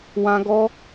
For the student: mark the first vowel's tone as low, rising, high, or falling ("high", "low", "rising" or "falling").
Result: high